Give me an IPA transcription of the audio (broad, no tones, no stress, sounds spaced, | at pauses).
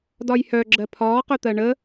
d ɒ j h œ ɡ͡ǁ ɜ pʰ ɒː q œ t̪ ɜ ɳ ə